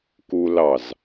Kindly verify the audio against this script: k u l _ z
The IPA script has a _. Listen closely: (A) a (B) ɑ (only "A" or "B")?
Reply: B